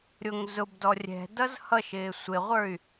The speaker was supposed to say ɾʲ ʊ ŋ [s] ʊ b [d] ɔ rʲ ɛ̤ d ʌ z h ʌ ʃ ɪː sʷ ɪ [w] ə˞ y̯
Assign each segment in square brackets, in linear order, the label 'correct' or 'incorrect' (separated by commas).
incorrect, correct, incorrect